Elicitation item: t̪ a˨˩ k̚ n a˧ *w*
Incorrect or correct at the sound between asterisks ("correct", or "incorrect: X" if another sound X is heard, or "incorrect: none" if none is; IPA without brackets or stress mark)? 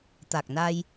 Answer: incorrect: j